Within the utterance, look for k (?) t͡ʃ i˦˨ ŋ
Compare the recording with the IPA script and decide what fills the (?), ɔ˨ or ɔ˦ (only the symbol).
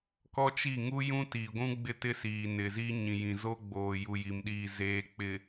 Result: ɔ˦